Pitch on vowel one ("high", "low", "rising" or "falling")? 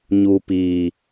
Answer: low